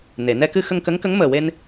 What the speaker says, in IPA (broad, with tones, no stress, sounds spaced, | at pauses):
n e˨˩˨ n ɛ˧ k ɨ˧ x ə˧ ŋ k ə˧˥ ŋ k ə˧˥ ŋ m əː˨˩ w e˧ n